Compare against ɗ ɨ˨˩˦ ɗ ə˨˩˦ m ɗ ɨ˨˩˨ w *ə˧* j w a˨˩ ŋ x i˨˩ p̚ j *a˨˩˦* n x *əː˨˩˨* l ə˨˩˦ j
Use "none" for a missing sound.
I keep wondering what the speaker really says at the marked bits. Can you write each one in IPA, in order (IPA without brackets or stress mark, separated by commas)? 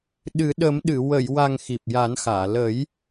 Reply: ə˨˩˨, a˨˩˦, aː˨˩˨